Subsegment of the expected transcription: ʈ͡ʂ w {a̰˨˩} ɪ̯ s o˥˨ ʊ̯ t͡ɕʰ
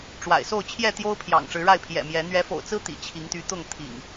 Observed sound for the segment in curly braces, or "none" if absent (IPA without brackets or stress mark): a̰˨˩